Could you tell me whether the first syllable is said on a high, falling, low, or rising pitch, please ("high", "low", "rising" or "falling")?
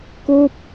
falling